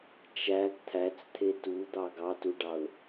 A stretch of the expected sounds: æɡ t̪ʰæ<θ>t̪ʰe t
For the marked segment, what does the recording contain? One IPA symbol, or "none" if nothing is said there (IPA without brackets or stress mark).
t͡s